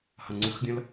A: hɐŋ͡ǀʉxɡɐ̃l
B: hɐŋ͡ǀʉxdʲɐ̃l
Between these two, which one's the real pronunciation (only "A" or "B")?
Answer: B